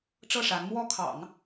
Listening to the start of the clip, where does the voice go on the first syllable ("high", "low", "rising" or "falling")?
falling